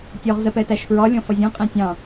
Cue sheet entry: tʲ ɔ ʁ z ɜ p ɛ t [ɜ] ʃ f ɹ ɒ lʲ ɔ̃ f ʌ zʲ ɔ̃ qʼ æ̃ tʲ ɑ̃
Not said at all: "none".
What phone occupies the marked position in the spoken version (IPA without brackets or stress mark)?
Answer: æ